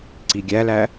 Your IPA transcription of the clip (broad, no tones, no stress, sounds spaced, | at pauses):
ǀ i ɡʲ æ l æ